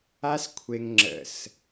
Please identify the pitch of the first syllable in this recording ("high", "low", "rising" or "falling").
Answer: high